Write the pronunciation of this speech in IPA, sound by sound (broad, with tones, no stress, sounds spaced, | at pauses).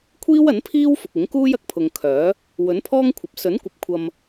kʷʰ iː˥ w ɐ˨˥ n pʰ iː˥ w f ʊ˨ k̚ ɪ˨˥ ŋ k uː˥ j ɐ˨ k̚ pʰ ʊ˨ ŋ kʰ œː˨˥ | w ɵ˨˥ n pʰ ɔː˥ ŋ kʷʰ ɐ˨ p̚ s ɵ˨˥ n kʷ ɐ˨˥ p̚ kʷʰ ɐ˧ m